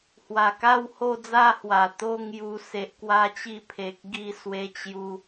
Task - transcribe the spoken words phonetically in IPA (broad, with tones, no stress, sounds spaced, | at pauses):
h w a˨˩ k a˥˧ w h o˥˧ d͡z a˥˧ h w a˨˩ t̪ o˥˧ ŋ j u˧ s e˨ ʔ k w a˥˧ t͡ɕ i˥˧ pʰ e˨ k̚ ɡ i˦ s w e˧ t͡ɕ j u˧